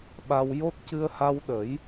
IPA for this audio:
ɓ a˧ w j o˦˥ t̚ c ɨ˧ ə̯ h a˧ w ɗ ə˨˩˦ j

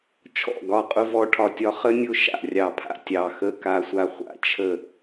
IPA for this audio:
t͡ʃʰ ɔ̰˧˩ ɡ ɒ˧˩ qʼ ʊ˧ v ɔ˧ ʈʰ ɒ˧˩ tʲ ɒ˧ χ ə˧ nʲ ʊ˧ ʃ a̰˧˩ rʲ ɑ˧˩ pʰ a̰˧ tʲ ɑ˧˩ x ə˧ k a˧ sʷ a˧ χʷ a̰˧˩ t͡ʃʰ ə˧˩

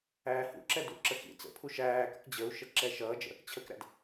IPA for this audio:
æː h ṵ ǁ ɛ d ṵ ǁ ə x ḭ t͡s ə̰ pʰ u ʃ æː k ʊ k d͡ʑ ə u̯ ʃ ə ǁ ɛ ʃ ʌː d͡ʒ ə̰ | t͡ɕʰ ə k ɾ æ̰ d

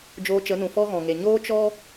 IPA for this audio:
d͡ʒ oː˧ t͡ʃ ə˨˦ n ũ˨ f ɔ˦ ɣ ɔ̃˨ ŋ e˨ ɲ oː˦ t͡ʃ ɔ˦

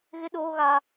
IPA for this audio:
ɣ ɪ˦ ɗ oː˦ ɣ a˦

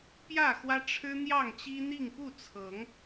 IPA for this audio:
p j ä˥˨ x w ä˦ ʈ͡ʂʰ ɻ̩˦ n̪ j ɑ˥˨ ŋ t͡ɕ i˦ n̪ i˥˨ ŋ p u˥˨ t͡sʰ ɤ˨˦ ŋ

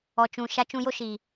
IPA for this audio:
ɔ˨ t͡ʃ ũ˨ ʃ a˧ t͡ʃ ũ˧ j o˦ ʃ i˨

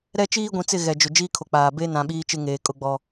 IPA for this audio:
ɾ ɛ˦ t͡ʃ iː˦ ɡʷ ĩ˨ t͡s ɪ˦˨ ɣ ɛ˨ d͡ʒ ʊ˨ d͡ʒ iː˦ kʰ o˨ k͡p aː˨ b e˦ n ã˨ ɓ iː˦ t͡ʃ ɪ˦ ŋ eː˨ kʼ ʊ˦ ɡ͡b ɔ˦

